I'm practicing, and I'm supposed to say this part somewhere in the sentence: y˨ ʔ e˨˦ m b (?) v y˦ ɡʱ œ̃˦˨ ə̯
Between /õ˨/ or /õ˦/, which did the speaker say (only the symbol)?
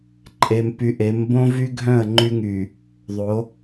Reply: õ˦